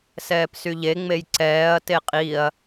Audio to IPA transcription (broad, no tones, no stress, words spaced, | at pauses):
sɛːpsyʎeŋ͡mej ǀɛːɐ̯ teqʼiɐ̯